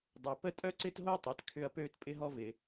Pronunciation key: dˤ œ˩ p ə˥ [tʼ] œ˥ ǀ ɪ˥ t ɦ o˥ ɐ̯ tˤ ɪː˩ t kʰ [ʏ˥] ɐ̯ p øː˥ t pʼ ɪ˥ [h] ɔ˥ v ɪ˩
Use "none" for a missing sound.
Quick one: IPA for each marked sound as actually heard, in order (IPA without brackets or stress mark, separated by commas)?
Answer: tʼ, ʏ˥, ɦ